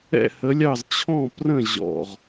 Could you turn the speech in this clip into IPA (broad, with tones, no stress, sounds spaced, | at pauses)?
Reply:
ɛ̰˥˩ h ə˨˥ lʲ ɑ˥˩ z t͡ɕʰ ɔ̃˥˩ p r ə̃˥˩ ʑ ɔ̰˥˩ ʁ